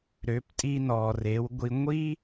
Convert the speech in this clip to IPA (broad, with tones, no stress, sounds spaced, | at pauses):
ɾ ø˩˧ p tʼ i˧ n ɔ˩ r e˩˧ w ɡʷ i˧ ŋʷ i˥